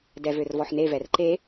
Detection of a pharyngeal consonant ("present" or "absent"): present